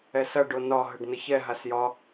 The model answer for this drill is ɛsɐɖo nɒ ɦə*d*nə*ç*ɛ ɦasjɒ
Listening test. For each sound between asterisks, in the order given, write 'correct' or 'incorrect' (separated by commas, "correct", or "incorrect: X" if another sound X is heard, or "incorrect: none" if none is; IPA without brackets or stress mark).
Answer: incorrect: ɖ, correct